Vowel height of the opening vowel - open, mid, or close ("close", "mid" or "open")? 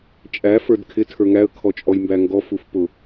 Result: open